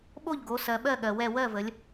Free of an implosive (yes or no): no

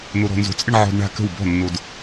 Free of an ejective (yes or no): no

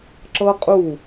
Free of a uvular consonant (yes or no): no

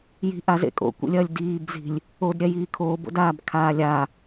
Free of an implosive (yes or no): yes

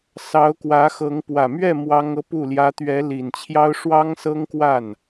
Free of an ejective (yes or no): yes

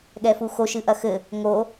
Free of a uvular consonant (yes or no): yes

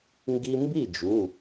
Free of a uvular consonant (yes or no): yes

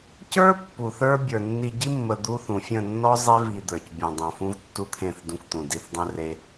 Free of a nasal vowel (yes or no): no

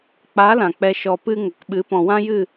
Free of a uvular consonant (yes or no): yes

